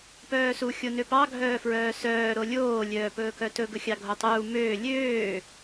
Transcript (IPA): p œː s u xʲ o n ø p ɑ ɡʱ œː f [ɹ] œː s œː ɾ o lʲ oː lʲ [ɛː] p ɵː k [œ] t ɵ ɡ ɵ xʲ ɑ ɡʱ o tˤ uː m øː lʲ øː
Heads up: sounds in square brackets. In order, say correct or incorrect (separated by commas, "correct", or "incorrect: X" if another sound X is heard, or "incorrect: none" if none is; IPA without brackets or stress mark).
correct, incorrect: œː, correct